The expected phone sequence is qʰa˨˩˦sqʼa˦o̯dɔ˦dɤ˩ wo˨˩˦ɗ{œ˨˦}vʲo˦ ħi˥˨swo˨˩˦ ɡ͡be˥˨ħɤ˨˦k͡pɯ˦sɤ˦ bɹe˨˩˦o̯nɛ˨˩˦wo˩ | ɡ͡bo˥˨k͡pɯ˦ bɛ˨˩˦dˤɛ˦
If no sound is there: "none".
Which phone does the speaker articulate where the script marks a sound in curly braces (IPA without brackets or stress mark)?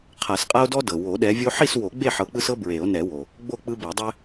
ɛ˨˦